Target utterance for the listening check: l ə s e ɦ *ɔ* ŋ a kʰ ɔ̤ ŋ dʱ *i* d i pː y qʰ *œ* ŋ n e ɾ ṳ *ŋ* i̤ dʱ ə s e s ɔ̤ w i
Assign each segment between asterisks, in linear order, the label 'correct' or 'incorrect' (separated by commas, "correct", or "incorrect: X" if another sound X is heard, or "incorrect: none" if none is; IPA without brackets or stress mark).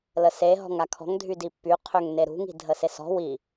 incorrect: ɔ̤, incorrect: y, incorrect: ø, correct